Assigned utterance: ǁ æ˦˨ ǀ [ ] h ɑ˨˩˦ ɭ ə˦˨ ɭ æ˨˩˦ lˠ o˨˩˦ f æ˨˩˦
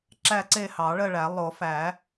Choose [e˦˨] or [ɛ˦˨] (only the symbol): e˦˨